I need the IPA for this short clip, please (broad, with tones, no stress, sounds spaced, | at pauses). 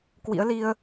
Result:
k w ḭ˧˥ ə̯ l i˧ ə̯